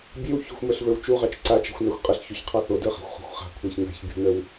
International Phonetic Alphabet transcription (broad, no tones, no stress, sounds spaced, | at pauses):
bʲ e w ç o̤ xʷ m ə˞ ɬ v ə˞ w t͡ʃ u ʁ ɑ t͡ʃ ǀ a t͡ʃ a̤ xʷ n ɑ xʷ qʼ ə ɬ ç o ç qʰ ɑ θ o d ə˞ χ a̤ xʷ χ o̤ xʷ χ a̤ kʷʰ æ ç n a̤ ç bʲ o̤ n ə w